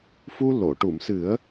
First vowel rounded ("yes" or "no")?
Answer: yes